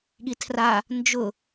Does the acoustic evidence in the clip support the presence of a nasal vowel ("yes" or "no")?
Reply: no